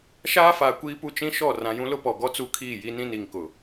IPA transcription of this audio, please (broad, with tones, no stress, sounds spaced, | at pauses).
ʃ aː˦ f aː˨ kʷ iː˦ p u˦ t͡ʃ ĩ˦ ʃ ɔ˦˨ r ã˨ j ũ˦ l ʊ˦ p ɔ˨ ɡ ɔ˦ t͡s u˦ kʰ iː˦˨ j i˦ n ĩ˦ n i˨ ŋ k ʊ˨